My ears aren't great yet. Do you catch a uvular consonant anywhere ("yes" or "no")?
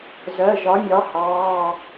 no